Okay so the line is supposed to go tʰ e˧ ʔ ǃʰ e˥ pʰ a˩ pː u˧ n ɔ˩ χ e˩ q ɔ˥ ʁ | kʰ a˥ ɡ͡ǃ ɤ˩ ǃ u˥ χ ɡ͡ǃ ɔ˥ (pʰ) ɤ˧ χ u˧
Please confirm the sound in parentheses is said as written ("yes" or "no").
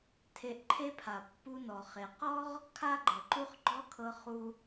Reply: no